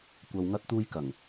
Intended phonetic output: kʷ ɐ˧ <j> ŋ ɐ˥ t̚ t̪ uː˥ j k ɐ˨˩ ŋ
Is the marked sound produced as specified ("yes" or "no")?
no